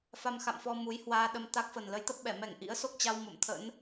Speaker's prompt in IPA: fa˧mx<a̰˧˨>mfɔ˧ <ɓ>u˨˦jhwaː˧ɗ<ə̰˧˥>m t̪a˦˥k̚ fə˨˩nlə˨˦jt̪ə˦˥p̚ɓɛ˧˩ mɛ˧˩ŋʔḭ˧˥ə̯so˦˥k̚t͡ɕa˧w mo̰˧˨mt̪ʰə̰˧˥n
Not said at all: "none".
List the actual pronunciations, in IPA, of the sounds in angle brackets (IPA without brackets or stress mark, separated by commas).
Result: a̰˧˨, m, ə˧